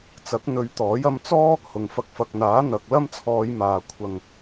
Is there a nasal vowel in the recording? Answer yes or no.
no